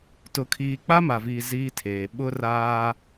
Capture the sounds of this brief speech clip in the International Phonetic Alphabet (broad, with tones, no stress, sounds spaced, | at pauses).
t ʊ˦ kʰ iː˦ k͡p a˦ m a˨ v iː˨ z iː˦ tʰ eː˨ ɓ ʊ˦ r aː˦